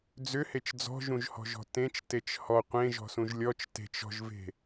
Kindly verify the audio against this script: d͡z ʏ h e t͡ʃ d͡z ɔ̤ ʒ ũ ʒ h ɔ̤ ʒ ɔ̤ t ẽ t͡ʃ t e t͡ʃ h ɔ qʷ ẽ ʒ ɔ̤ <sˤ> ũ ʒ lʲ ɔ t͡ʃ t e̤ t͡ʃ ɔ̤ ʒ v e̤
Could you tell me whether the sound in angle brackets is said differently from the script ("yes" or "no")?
yes